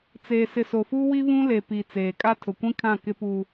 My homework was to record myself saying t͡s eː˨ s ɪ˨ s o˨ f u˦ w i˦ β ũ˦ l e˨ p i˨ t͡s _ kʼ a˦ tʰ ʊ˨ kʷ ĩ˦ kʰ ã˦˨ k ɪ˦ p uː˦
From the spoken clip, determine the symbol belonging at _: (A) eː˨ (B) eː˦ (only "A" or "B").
A